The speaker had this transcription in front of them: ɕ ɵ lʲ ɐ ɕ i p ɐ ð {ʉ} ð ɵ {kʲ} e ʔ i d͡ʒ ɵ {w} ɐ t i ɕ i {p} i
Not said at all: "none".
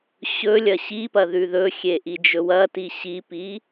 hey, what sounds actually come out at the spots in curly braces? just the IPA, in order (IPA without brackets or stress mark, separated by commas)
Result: ʉ, xʲ, w, p